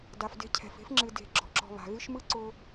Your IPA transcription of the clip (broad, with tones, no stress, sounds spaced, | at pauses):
d a˨ f d e̤˦ cʰ ɛ̤˩ f e̤˥ f ŋ͡ǁ ɨ˨ d e̤˨ ɡ͡ǁ ɔ̤˩ ǁ ɔ̤˨ β a̤˩ ɣ ɨ˦ ʃ m ɯ˥ ǀ ʊ˦